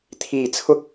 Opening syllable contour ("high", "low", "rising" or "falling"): low